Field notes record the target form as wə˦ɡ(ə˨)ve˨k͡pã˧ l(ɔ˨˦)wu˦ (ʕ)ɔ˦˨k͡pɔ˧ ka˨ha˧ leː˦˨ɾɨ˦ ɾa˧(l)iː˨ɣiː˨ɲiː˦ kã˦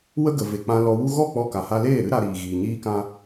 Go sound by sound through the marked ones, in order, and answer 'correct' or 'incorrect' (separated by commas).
correct, incorrect, incorrect, incorrect